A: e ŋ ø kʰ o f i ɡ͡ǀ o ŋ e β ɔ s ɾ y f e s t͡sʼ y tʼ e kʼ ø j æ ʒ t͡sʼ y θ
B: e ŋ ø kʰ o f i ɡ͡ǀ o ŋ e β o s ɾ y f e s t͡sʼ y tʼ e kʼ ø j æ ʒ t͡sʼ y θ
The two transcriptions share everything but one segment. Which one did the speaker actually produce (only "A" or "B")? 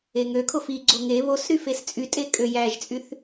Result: B